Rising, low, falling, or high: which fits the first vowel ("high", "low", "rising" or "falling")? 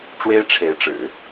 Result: high